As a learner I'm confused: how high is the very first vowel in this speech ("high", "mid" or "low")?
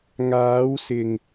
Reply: low